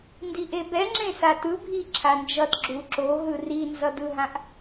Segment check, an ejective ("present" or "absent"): absent